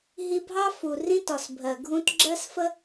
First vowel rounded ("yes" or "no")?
no